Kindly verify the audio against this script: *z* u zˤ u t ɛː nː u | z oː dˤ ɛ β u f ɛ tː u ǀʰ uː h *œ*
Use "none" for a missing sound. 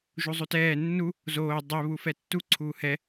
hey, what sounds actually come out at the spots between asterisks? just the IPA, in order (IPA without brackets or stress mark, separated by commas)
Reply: ʒ, ɛ